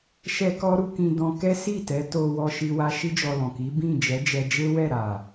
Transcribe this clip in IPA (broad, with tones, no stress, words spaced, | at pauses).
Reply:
ʃɛ˦kɔ˦ ɾu˧kĩ˧ dɔ̃˧kɛ˦ si˦˨tɛ˨˦ to˧wɔ˧ ʃi˧wa˧ ʃi˦d͡ʒɔ˧lɔ̃˨ ki˨˦ bĩ˦˨d͡ʒɛ˨˦d͡ʒɛ˧d͡ʒe˦ wɛ˦˨ɾa˨